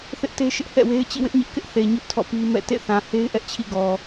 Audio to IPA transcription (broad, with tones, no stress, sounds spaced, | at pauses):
θ ɪ˦ ʔ t e˦ ʃ ɪ˦ ʔ h ɛ̰˦˨ w e˦ ɪ̯ t͡ɕ ḭ˦˨ w ɪ˦ ʔ ɲ ɪ˦ ʔ k ɪ˦ ʔ θ e˨ ɲ ʊ˦ ʔ tʰ ɔ̰˦˨ p i˦ m ɛ̰˦˨ t ḛ˦˨ θ ã˨ h e˦ ɪ̯ ʔ ɛ˦ ʔ t͡ɕʰ ḭ˦˨ ɡ ɔ˨